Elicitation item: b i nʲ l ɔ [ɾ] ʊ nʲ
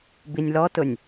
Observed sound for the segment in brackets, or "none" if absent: t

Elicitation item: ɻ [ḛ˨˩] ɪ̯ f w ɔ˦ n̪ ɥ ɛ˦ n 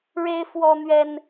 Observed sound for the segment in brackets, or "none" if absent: e˦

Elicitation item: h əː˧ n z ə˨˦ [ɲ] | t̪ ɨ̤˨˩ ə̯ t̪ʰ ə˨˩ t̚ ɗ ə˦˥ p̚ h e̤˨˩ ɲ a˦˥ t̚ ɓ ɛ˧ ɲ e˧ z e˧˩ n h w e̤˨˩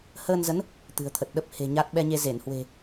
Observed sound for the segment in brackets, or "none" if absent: n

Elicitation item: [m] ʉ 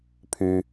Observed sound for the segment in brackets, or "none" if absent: pʰ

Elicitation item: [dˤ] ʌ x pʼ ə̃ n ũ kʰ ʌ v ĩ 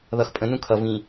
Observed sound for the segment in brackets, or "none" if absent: ð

